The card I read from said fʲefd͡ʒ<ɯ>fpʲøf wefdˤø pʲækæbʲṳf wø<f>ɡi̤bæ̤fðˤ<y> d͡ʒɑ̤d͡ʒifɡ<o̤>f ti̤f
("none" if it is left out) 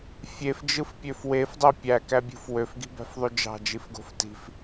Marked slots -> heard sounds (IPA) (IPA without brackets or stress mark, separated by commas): ɯ, f, y, o̤